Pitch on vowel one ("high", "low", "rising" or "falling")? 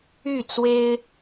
falling